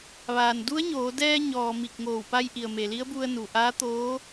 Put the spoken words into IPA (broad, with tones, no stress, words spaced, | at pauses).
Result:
ʋaː˩n du˧˥ə̯ɲoː˩˧dɛː˧ ɲɔː˩ mi˧˩k̚ŋoː˧˩w pa˧jʔi˩ə̯ me˩li˧˥ə̯bu˧ə̯ nu˩ʔaː˧˥t̪oː˧˥